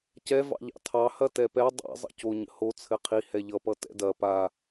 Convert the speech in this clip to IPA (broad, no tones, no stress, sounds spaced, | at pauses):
c ɛ v ɑ̰ ʎ ɑ̰ tʰ ɑ h ɐ t ɛ p ɛ dˤ ɛ̰ zˤ ə̰ c o ɲ ə̰ h o t͡sʰ ɘ qʰ i h ɛ ʎ ʌ p ʌ t ɛ̰ d ɐ p a